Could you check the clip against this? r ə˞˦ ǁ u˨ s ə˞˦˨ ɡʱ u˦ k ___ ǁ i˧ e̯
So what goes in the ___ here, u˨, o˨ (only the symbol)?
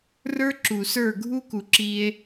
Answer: u˨